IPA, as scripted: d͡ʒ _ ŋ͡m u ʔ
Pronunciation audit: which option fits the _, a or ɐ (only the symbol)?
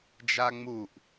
a